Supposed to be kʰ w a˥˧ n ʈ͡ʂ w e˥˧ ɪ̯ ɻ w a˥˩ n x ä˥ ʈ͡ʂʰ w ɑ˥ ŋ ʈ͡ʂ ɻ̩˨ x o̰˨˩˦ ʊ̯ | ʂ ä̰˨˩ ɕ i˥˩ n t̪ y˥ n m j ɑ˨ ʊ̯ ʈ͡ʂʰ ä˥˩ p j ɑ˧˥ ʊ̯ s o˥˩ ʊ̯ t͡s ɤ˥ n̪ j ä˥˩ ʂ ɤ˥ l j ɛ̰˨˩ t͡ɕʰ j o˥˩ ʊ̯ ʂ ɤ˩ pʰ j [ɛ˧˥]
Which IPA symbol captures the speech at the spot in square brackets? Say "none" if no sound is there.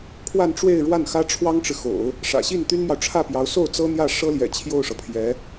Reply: ɛ˧˥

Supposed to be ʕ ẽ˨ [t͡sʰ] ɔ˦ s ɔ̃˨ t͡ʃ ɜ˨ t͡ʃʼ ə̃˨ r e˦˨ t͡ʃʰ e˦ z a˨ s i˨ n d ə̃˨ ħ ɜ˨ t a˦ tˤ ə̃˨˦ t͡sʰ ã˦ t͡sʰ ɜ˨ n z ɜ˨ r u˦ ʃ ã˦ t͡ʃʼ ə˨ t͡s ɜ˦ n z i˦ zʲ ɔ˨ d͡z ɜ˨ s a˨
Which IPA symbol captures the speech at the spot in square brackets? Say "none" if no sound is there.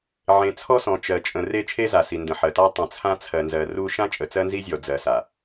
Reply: t͡sʰ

